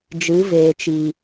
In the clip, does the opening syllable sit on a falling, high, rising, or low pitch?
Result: rising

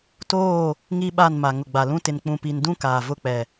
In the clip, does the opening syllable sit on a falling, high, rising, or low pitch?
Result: falling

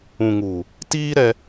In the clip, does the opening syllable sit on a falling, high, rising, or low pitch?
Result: low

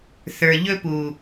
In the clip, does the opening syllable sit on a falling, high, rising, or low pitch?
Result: low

